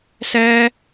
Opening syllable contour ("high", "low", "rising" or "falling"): high